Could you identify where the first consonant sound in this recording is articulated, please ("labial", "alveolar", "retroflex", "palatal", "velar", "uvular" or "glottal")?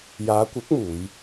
palatal